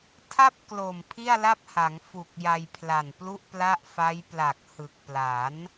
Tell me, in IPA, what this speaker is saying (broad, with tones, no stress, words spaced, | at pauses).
tʰa˥˩p̚ klo˨˩mpʰi˥˩a̯la˥˩p̚ha˩˦ŋ fu˨˩k̚ ja˧jpʰla˨˩nplu˥˩ʔpla˥˩ʔ fa˦˥jpla˨˩k̚ hɯ˨˩k̚ pla˩˦n